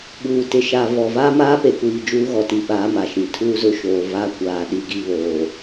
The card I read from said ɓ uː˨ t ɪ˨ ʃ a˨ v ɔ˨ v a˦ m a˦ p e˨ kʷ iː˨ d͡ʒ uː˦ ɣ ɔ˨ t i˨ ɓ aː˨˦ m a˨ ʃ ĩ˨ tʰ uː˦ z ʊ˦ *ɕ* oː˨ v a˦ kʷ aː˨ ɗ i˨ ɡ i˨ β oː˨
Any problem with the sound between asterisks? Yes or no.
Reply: yes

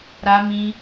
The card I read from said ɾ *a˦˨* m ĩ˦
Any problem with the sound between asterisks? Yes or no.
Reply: yes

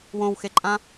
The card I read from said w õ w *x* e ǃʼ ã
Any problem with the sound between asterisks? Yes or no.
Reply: no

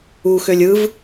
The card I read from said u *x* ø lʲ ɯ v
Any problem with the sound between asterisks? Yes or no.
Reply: no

